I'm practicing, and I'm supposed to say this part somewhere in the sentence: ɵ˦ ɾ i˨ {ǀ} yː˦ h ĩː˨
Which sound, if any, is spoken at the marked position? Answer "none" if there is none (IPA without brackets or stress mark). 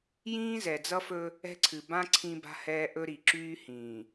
ǁ